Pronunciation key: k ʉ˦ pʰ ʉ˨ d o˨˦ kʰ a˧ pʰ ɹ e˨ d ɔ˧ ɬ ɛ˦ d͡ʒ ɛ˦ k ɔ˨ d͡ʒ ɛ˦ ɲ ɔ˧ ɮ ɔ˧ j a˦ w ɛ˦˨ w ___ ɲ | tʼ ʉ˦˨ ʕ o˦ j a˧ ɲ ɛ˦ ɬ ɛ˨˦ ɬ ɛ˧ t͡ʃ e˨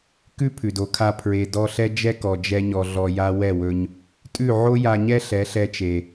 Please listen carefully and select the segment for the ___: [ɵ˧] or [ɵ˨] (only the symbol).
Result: ɵ˧